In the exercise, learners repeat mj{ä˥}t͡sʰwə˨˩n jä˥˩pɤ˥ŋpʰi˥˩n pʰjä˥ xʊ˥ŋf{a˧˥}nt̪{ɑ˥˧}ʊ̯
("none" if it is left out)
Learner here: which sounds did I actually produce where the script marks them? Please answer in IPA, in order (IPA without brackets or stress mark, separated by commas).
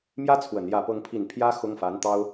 ä˥, a˧˥, ɑ˥